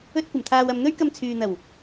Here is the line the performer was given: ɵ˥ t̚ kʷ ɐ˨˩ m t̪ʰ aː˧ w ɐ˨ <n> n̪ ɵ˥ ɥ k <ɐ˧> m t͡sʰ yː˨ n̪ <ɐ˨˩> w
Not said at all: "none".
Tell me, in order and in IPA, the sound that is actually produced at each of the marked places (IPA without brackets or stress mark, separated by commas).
m, ɐ˧, ɐ˨˩